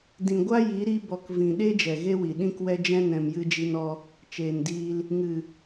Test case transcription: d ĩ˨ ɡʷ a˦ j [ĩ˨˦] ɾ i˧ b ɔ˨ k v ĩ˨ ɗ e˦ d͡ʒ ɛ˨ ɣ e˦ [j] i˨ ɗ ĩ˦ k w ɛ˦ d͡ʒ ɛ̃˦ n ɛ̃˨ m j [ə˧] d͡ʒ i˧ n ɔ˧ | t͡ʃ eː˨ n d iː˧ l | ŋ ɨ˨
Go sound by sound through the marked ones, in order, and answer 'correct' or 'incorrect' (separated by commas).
incorrect, incorrect, incorrect